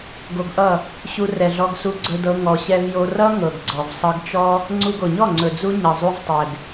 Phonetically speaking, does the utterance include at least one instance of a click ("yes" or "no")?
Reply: yes